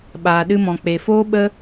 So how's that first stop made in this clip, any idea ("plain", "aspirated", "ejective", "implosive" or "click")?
implosive